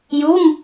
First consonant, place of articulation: palatal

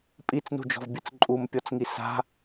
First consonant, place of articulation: labial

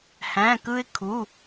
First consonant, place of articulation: glottal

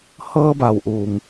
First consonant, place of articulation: glottal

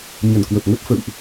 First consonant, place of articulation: palatal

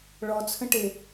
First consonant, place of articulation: retroflex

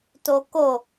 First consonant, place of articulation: alveolar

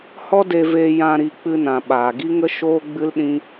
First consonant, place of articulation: glottal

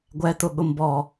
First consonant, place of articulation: velar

